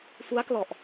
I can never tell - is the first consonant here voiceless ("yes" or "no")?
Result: yes